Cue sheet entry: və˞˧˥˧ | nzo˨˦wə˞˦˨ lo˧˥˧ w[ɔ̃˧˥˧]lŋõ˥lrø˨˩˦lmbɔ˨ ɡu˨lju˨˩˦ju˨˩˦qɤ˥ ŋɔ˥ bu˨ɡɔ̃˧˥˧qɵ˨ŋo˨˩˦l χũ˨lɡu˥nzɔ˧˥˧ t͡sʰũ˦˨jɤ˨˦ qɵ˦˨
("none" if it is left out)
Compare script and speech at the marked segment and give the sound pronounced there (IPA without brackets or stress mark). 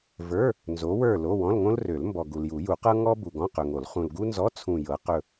ɔ̃˧˥˧